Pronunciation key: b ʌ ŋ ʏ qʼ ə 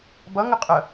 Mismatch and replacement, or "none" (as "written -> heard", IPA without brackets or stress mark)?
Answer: none